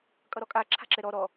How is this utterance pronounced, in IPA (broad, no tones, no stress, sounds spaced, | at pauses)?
kʼ ʌ ɾ ɔ kʼ a ǁʰ a̤ ǁ ɛ ɾ ɔ ɾ ɔ